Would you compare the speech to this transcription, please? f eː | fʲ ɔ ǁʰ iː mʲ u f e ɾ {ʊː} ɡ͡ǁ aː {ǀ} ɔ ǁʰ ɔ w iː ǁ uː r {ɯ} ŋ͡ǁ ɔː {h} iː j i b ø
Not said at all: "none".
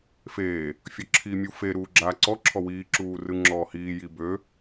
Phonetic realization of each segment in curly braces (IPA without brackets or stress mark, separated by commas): uː, ǀ, ɯ, h